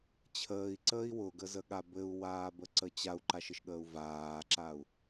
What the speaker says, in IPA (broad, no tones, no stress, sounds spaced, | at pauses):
t͡ɕʰ əː i̯ ǀ əː i̯ w ʊ ɡ ə z ə ɠ a b ɘ u̯ w aː b ə ǀ ə t͡ɕ a u̯ ǃ a ʃ ɘ ʃ ɠ əː u̯ v aː ǁ a u̯